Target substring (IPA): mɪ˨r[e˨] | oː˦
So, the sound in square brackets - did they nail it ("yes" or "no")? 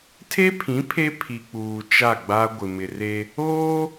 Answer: no